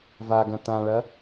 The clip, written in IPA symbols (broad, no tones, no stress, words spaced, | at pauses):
vaɡɐ̃ tãɭɐ